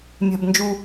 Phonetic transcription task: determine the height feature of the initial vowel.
low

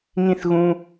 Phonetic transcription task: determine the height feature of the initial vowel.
high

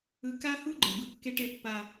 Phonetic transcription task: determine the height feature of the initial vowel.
high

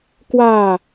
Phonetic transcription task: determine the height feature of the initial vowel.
low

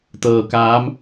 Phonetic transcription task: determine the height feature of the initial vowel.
mid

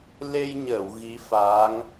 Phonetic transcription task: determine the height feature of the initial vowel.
mid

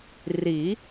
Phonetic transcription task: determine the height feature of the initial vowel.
high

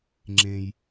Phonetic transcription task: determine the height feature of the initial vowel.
mid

